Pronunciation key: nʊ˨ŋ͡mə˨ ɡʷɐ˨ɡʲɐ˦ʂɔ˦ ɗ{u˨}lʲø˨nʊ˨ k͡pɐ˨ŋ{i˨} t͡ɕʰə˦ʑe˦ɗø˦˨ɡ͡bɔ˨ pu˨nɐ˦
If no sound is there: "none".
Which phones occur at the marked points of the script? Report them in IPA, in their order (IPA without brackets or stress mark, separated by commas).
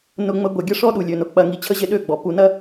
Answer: u˨, i˨